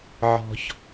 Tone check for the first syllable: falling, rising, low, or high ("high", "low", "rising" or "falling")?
high